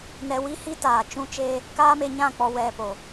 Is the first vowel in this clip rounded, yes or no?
no